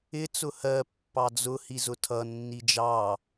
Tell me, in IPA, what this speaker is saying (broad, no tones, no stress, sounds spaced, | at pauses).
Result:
ɪ t͡s ʊ h ɜ pː ɑ d͡z ʊ h i z ʊ tʰ ʌ nː i d͡ʒ ɑ